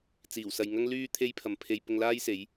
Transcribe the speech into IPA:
t͡s iː˨˩ w s ɐ˨ j ŋ ɐ˥ ŋ l yː˥ t̪ʰ e˥ j pʰ ɐ˨ m pʰ e˧ j p ʊ˧ ŋ l aː˥ j s e˨˥ j

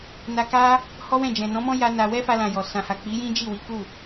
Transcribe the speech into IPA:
n a˧ k a˦ | h ɔ˦ w ɛ̃˦˨ d͡ʒ ɛ̃˨ n ɔ̃˨˦ m ɔ̃˦ j a˦ n a˧ w ɛ˦ f a˧ l ã˨ j ɔ˨ s ã˨ h a˨ k͡p i˨˦ j ĩ˦ d͡ʒ i˦˨ w i˨˦ k u˦˨

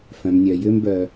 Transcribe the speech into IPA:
f œ̃˩ m nʲ œ˩ j ʏː˧ m b œ˩

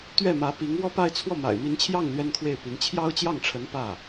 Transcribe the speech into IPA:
t̪ ɥ ɛ˥˩ m ä˧˥ p i˧˥ ŋ w ɔ˥˧ p a˥˧ ɪ̯ t͡sʰ w ɔ˥˩ m a̰˨˩ ɪ̯ m i˧˥ n t͡ɕʰ j ɑ˥˩ ŋ l ɥ ɛ˥ n kʰ w e˥˩ ɪ̯ p i˧˥ n t͡ɕʰ j ɑ˥ ʊ̯ t͡ɕ j ɑ˥˩ ŋ ʈ͡ʂʰ ə˧˥ n p ä˥˩

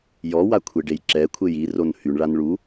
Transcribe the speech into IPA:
j ɔ w a kʷʰ e ɖ e j ǁ ɛ kʷʰ e j i r o n h y ɳ ɭ a n ɭ u

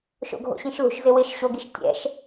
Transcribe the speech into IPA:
ʃ o̰ ɡʱ o̰ ɕ ĩ ʃ l ṳ ʃ z ɪ w ɪ ʃ ɕ o ɡ i ʃ tʲ ɛ̰ ʃ

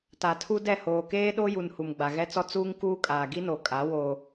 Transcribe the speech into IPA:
t a˨ tʰ u˦ d ɛ˦˨ h oː˨ k eː˦ ɗ o˦ j u˨ n h u˨ m ɡ͡b a˨ ɣ ɛ˦ t͡s ɔ˦ t͡s uː˦ ŋ k uː˦ kʼ aː˨ ɡ i˦ n o˨ kʼ a˨˦ w o˦

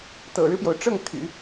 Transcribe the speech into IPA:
t̪ ɤ̰˨˩ ɻ ɻ̩˦ p j o˩ ʊ̯ ʈ͡ʂ ɤ˥˩ ŋ t̪ʰ y̰˨˩˦

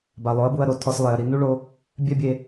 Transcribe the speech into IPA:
b a˨ lˠ o˨˦ ɐ̯ b u˧ ɐ̯ ɾ o˧ tʰ ɔ˧ s lˠ e˨ ɐ̯ ɾ i˨ n u˦ ɭ o˧ | bʲ ɛ˦ bʲ e˧

